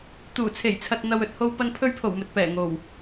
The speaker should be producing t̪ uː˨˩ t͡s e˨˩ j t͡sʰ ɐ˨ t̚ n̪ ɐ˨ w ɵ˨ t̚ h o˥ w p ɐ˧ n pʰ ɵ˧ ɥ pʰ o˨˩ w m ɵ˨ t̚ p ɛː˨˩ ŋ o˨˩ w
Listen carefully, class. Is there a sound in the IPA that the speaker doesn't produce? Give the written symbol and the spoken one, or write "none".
t͡s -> t͡sʰ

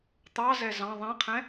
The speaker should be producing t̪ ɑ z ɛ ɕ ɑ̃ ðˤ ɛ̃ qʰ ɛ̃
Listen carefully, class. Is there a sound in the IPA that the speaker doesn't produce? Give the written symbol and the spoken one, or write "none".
ɕ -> z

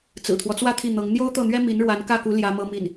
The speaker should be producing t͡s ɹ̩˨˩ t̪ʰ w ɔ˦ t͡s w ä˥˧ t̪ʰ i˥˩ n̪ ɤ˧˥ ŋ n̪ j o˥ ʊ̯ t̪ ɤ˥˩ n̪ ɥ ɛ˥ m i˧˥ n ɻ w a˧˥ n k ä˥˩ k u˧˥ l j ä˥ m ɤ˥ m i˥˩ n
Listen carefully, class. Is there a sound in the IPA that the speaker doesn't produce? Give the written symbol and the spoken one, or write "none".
none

